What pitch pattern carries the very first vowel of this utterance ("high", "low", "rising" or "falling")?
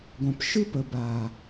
low